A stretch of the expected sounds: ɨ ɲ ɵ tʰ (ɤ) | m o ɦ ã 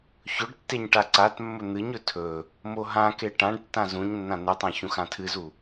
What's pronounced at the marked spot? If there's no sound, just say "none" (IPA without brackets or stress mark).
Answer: ɵ